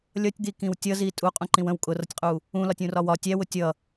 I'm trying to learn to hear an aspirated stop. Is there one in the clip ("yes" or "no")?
no